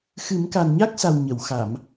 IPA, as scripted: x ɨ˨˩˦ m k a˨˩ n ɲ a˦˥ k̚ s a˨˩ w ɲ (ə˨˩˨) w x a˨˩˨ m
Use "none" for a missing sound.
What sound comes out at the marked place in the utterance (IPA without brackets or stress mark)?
ə˨˩˨